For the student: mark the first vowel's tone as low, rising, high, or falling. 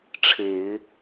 low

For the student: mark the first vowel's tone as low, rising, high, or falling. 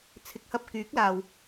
rising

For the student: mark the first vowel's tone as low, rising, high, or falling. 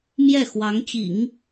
falling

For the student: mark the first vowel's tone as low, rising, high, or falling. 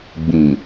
low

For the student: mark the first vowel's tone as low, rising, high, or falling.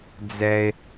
low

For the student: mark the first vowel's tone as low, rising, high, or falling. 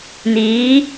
rising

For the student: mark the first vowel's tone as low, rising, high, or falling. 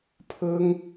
high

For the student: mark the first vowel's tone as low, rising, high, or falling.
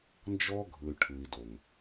high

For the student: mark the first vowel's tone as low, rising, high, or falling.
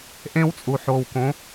high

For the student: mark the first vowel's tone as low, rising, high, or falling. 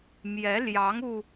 rising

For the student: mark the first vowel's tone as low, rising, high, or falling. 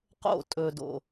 falling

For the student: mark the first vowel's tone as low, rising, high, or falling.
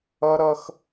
high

